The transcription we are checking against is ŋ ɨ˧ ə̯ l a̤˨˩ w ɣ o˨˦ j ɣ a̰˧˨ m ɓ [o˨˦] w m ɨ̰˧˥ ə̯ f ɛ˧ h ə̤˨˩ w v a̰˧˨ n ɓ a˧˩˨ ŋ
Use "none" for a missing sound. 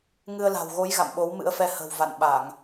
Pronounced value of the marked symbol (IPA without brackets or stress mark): o˨˦